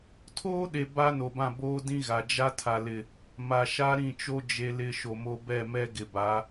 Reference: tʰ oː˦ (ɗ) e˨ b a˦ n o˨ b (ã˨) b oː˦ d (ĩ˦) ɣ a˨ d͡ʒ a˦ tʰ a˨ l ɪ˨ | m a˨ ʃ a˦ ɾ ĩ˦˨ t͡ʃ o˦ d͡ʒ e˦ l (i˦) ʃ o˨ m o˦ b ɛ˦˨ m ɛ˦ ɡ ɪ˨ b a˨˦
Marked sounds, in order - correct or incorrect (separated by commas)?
correct, incorrect, correct, incorrect